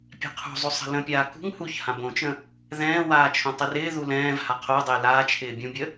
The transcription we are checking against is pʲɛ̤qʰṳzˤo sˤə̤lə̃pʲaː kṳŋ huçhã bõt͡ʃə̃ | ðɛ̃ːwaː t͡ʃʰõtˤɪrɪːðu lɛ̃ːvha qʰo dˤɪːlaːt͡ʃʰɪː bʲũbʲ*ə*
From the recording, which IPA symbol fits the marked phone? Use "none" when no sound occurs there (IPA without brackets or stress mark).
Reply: ə